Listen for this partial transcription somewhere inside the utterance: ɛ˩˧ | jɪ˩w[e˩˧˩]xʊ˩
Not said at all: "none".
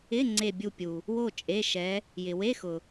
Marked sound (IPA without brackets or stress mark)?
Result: e˧˥˧